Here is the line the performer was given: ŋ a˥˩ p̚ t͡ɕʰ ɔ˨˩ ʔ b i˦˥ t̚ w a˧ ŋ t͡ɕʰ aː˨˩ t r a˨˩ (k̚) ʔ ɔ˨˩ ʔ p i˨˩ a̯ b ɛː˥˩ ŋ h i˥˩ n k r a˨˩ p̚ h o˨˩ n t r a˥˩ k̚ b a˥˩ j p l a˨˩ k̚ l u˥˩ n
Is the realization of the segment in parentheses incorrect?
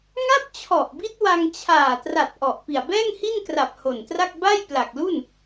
yes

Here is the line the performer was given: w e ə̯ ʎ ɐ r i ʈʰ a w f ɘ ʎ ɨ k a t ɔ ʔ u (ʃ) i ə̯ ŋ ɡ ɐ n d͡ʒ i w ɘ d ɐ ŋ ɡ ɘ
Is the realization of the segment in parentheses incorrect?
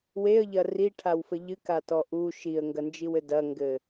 no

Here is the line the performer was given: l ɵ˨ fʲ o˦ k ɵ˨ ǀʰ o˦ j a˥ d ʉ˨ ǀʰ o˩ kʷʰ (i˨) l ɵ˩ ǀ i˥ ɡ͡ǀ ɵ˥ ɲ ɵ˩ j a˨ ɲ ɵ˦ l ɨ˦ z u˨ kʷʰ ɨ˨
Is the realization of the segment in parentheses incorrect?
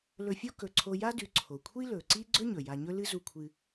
yes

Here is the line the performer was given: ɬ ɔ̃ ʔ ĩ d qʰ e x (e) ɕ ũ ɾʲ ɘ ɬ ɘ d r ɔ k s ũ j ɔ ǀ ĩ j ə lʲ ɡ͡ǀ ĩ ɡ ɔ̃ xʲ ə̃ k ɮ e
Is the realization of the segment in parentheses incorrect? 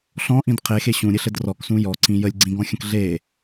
no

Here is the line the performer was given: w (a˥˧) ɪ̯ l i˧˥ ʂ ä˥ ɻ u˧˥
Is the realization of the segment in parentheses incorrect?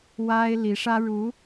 yes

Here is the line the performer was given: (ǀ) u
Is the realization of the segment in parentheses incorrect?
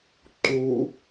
yes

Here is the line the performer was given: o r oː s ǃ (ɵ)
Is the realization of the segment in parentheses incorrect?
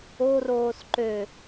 yes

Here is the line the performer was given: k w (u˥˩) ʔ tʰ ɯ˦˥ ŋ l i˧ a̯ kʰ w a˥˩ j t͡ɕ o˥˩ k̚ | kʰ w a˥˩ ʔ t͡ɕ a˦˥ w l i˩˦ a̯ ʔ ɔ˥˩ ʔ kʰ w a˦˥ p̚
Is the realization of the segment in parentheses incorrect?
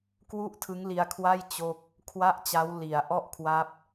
no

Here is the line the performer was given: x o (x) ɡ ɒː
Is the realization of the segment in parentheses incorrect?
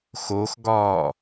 no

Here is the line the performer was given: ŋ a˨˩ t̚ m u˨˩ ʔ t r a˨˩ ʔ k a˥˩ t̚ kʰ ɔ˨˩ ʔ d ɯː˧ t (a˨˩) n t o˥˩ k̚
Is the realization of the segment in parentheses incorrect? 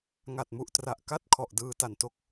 no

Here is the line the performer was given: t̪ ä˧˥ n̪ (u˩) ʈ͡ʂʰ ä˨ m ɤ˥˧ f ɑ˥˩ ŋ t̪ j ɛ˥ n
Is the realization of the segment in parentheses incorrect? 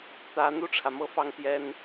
yes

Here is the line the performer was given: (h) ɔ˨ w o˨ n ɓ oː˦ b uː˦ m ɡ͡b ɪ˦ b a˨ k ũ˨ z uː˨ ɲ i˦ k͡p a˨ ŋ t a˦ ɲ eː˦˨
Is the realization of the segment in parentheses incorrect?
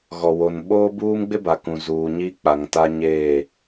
yes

